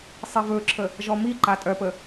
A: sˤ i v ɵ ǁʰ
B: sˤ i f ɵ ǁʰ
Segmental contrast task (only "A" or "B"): A